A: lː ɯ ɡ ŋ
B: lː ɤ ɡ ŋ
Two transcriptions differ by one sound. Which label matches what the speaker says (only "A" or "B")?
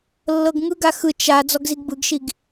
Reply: B